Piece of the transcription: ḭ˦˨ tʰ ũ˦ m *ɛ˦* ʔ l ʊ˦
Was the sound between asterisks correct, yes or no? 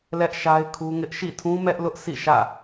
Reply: yes